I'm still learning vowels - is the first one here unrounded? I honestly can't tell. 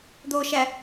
no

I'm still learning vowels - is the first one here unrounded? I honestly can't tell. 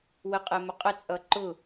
yes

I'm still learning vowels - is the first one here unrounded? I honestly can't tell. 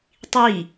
yes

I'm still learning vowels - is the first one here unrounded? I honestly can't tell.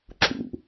no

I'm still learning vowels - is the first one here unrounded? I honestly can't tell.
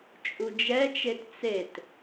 no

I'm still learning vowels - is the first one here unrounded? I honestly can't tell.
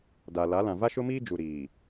yes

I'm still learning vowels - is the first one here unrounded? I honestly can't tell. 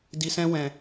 yes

